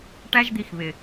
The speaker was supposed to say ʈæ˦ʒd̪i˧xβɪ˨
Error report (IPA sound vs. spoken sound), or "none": none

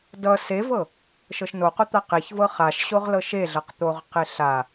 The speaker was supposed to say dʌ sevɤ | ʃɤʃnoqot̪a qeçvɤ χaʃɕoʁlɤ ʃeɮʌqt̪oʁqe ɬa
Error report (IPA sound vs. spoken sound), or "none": none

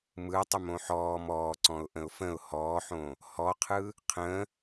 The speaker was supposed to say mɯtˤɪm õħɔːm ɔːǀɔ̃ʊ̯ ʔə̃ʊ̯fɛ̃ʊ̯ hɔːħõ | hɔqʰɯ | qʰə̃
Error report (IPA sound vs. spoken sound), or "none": ɛ̃ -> ə̃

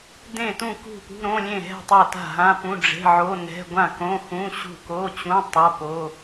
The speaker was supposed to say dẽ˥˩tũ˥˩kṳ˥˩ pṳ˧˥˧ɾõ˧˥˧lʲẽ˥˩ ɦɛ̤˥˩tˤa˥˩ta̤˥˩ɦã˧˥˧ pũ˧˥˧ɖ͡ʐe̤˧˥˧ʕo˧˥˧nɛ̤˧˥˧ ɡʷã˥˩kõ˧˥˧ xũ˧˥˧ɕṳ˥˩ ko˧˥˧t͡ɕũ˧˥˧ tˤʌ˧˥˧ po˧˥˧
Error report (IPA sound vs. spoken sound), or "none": none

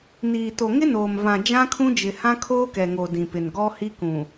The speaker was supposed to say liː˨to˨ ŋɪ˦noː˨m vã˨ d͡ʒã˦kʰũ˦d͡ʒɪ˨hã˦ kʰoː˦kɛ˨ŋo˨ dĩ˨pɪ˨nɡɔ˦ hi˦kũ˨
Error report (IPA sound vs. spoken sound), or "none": l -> n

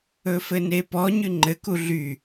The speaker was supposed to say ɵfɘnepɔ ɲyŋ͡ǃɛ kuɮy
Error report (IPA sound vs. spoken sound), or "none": ɛ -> ɘ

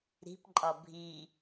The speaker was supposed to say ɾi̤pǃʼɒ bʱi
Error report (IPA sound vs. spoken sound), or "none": none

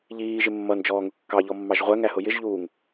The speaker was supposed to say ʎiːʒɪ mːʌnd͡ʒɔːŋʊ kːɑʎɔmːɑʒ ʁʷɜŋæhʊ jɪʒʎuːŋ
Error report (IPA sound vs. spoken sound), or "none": none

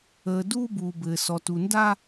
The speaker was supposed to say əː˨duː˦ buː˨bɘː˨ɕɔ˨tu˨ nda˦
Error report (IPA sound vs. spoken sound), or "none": ɕ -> s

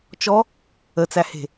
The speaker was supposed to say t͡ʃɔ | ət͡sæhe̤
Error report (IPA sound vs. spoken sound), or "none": none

